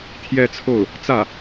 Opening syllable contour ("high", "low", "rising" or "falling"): falling